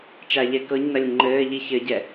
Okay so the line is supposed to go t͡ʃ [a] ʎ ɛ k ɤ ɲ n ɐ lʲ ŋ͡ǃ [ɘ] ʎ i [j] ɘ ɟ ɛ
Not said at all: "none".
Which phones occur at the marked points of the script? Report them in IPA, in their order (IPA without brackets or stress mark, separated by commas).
a, ɘː, ç